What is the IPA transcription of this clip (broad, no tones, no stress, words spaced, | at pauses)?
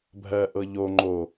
bʱɜ ʔɤʎo ŋ͡ǃo